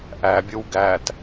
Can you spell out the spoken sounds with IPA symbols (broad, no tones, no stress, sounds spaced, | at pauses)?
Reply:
ʔ æ bʲ ɯ w ɡ æ t